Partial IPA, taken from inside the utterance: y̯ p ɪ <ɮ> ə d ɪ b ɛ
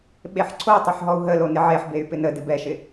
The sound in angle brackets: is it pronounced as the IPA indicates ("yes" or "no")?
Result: no